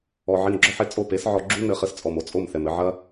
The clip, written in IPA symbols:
ɔ˧ ʕ i˧ n ɡ͡ǁ ɔ˦ ħ e˦ t͡sʼ o˦˨ p e˨˦ s ʕ ɔ˧ ɡ͡ǁ u˦ n ɘ˧ χ ɘ˧ s t͡sʼ ɔ˨ m o˧ t͡sʼ o˦˨ m θ ɛ˨ m ɘ˧ ʕ ɐ˦

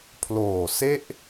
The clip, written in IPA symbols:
pʰ l oː˨˩ s e˥˩ ʔ

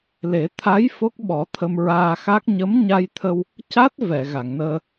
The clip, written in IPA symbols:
l e˨˩˦ t̪ʰ a˧˥ j f o˦˥ k̚ ɓ ɔ˨˩˦ t̪ʰ ə˧ m ɹ aː˧ x a˦˥ k̚ ɲ ə˧˥ m ɲ a˧ j t̪ʰ ə˧ w | c a˦˥ t̚ v ɛ˨˩˨ ɣ a˨˩˨ ŋ n əː˧

